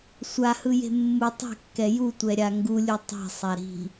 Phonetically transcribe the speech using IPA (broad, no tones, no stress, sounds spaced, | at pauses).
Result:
sʷ a h ɯ j e̤ mː u tˤ e̤ kː ɛ j u tʷ ɛ ɾʲ a ŋ ɡ u lʲ u tˤ e̤ sˤ a ɾ i̤